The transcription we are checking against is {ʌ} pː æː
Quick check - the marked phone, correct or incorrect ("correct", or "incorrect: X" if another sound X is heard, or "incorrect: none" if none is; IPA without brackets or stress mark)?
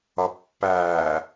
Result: correct